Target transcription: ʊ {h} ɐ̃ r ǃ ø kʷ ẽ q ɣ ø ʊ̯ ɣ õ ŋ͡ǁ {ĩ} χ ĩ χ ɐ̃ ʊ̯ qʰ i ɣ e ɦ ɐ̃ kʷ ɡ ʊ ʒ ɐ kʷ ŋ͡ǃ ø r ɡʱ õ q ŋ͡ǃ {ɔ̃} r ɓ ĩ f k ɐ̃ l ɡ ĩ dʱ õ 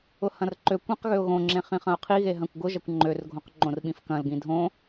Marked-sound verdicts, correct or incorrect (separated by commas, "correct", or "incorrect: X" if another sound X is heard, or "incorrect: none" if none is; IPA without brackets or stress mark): correct, incorrect: ẽ, incorrect: õ